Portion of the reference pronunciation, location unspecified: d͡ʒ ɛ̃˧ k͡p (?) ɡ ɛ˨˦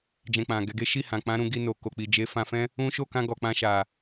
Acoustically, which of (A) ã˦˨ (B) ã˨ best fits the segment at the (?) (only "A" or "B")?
B